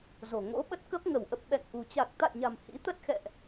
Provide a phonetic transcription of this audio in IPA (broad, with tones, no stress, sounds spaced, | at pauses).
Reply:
z o̤˨˩ ŋ o̰˧˥ ɓ ə˦˥ t̚ k ə˦˥ p̚ ŋ ə˧˩ w ʔ ə˨˩ p̚ ɓ ɛ̰˧˨ ŋ ʔ ṳ˨˩ t͡ɕ a˨˩ k̚ t̪ a̰˧˨ j ɲ a̤˨˩ m h ḭ˧˥ t̪ ə˦˥ t̚ x ɛ̰˧˨ ʔ